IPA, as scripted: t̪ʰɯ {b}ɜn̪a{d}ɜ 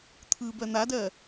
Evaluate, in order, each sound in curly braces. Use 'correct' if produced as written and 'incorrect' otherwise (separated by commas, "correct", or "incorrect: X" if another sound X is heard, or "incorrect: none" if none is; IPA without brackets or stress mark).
correct, correct